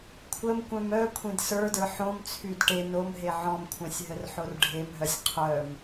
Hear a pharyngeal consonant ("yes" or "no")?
yes